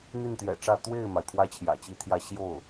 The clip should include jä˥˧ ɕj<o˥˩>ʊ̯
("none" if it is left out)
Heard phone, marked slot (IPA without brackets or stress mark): o˥˩